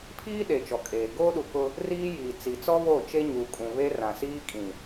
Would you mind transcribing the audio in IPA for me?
pʰ iː˦ ɗ e˨ t͡ʃ ɔ˨ kʼ eː˨ ɡ oː˦ ɗ u˨ k ʊ˦ | r iː˦ j iː˨ t͡s i˨ t͡s ɔ˦ β o˦˨ t͡ʃ e˦ ɲ uː˨ kʼ ũ˨ β e˦ r ã˨ s iː˦ kʼ ĩ˨

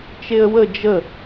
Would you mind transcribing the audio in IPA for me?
t͡ʃ e ə̯ w ə d͡ʒ ə

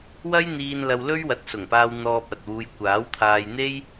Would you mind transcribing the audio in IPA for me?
w ɐ˥ j n̪ iː˧ n l ɐ˧ w l ɵ˥ ɥ w ɐ˨˥ t̚ s ʊ˨˩ ŋ p aː˧ w n̪ ɔː˧ p̚ ɐ˨ t̚ w uː˧ j kʷ aː˨˥ w t̪ʰ aː˧ j n̪ e˥ j

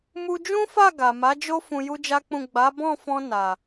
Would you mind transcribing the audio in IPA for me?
m u˧ d͡ʒ ũ˦ f a˦˨ ɡ a˨ m a˨˦ d͡ʒ o˦ f ũ˧ j u˦ d͡ʒ a˦ k͡p ũ˦˨ ɡ͡b a˨˦ b ɔ̃˦˨ f ɔ̃˧ n a˨

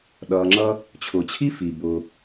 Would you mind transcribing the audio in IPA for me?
ɗ ʌː˨ ŋ͡ǁ ʌ˦ | t͡ɕʰ ʊː˨ t͡ɕʰ i˥ f i˩ b ʊː˨

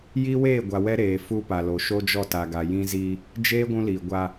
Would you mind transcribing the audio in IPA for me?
j i˦ w eː˦˨ ɡʷ a˨ w ɛ˦ ɾ eː˨ f u˦ p a˨ l o˨ ʃ o˦ d͡ʒ ɔ˦˨ t a˨ ɡ a˨ j ĩ˦ z i˦ | d͡ʒ eː˦ ɡʷ ũ˦ l iː˨ ɡʷ a˦

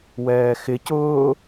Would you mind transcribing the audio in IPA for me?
w ɛː x ɪ c ʊː

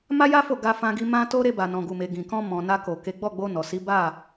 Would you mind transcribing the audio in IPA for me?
m a˦ j a˦ f o˦˨ ɡ a˧ f ã˧ ɡ i˧ m ã˦ t o˦ ɾ e˧ b a˨ n ɔ̃˨ ɡ u˨ m e˨ ɡ ĩ˨ k ɔ̃˧ m ɔ̃˨ n a˧ k o˨ k e˨˦ ɡ͡b ɔ˦˨ ɡ͡b o˧ n ɔ˨ s i˨˦ b a˦˨

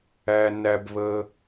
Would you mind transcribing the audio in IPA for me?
æ˧ n æ˧ b β ə˧

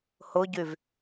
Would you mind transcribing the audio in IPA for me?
h ʊ ɟ y v

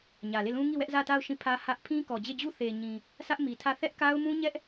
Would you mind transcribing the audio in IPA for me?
ɲ ä˨ l e˦˨ l ũ˦ ŋ i˦˨ w ɛ˦ ʔ z ä˦˨ t a˦˨ ʊ̯ ʃ ĩ˦˨ pʰ ä˦ h ä˦ ʔ pʰ ĩ˦ k ɔ˨ d͡ʑ e˦˨ d͡ʑ u˦˨ θ e˨ ɲ ĩ˨ | sʰ ä˦ ʔ m i˨ tʰ ä˦˨ θ ɛ˦ ʔ k a˦ ʊ̯ m ũ˦ ɲ ɛ˦ ʔ

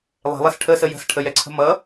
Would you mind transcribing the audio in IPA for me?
lˠ e̤ lˠ ɛ s ʈʰ ə s ə j ə̤ s ʈʰ ə j ɛ ǀʰ ə̤ m ʌ

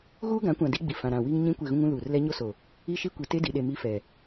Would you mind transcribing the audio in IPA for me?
ɣ uː˦ ɡ ã˨˦ kʷ ã˨ d i˦ ɡ͡b i˨ f ã˨ ɾ ã˨ w i˦ ŋ ɲ ĩ˦ kʷ e˦˨ ɣ ũ˦ ŋ ũ˦ l uː˨ r l ɛ˦ ɲ o˦ s o˨ | i˦ ʃ i˦ kʷ i˨ t e˦ d i˨ ɗ e˨ m i˦ f ɛ˨

